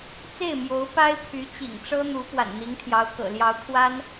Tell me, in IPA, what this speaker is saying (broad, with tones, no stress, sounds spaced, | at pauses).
t͡s e˥˩ ɪ̯ m j o˧˥ ʊ̯ p a˥ ɪ̯ pʰ y˧˥ t͡ɕ ḭ˨˩ ŋ ʈ͡ʂ ɤ˥ n̪ u˧˥ p w a̰˨˩ n n̪ i˧˥ ŋ t̪ʰ j ɑ˧˥ ʊ̯ k ɤ̰˨˩ l j ɑ˧˥ ʊ̯ kʰ w a˥ n